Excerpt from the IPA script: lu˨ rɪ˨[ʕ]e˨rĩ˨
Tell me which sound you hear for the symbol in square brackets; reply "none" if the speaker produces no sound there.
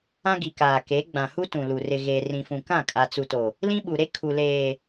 ɣ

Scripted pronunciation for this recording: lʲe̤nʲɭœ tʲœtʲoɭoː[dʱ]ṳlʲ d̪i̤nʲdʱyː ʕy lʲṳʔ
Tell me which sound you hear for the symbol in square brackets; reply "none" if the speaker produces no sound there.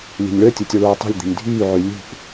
tˤ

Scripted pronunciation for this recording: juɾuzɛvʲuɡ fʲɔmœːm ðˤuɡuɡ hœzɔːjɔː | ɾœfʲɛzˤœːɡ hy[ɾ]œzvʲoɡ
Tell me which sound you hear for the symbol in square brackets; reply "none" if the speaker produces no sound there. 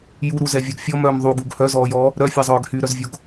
ɾ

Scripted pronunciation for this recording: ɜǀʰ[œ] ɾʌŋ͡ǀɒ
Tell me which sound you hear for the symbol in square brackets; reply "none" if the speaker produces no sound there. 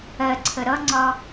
ə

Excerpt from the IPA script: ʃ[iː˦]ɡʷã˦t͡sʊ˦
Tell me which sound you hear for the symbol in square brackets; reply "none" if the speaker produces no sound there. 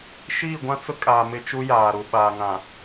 iː˦˨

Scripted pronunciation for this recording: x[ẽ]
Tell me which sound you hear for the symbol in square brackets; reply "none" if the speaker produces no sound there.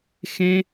ẽ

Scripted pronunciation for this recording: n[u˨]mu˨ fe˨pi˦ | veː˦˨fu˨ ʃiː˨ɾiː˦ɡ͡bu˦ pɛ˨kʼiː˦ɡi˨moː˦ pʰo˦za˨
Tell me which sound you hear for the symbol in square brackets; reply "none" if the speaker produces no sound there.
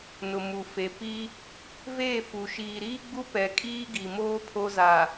ʊ˨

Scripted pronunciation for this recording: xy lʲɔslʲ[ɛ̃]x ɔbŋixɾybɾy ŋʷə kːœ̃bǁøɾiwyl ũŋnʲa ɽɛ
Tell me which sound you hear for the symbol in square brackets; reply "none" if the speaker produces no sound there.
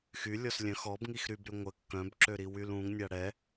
œ̃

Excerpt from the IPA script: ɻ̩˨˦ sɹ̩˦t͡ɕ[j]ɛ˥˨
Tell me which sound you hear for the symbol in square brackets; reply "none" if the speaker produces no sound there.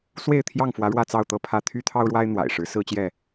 j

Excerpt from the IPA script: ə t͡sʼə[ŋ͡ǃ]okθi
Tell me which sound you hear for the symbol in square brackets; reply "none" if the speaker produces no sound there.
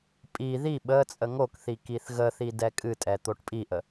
ŋ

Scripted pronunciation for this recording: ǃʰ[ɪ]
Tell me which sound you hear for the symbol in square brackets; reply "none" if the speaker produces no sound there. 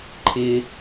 ɪ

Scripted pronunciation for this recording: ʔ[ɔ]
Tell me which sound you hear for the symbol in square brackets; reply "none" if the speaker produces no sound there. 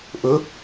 ɵ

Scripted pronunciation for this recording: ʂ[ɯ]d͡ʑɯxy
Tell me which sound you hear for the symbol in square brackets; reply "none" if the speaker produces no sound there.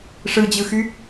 ɯ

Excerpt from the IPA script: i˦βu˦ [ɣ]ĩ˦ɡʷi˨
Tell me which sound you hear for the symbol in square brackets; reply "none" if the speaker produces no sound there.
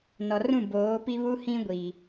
h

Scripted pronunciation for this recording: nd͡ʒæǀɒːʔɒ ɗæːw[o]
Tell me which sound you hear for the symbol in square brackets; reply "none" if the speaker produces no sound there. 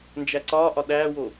o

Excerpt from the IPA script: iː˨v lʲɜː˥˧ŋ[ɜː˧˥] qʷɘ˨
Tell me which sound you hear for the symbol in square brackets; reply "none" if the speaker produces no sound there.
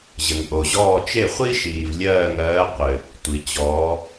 ɜː˧˥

